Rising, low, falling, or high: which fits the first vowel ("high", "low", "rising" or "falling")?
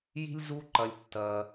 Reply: high